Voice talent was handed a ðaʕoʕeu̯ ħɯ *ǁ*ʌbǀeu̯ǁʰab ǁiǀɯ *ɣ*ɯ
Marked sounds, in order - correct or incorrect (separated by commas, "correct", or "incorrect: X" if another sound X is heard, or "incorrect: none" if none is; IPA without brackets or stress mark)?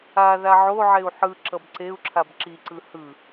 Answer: correct, incorrect: h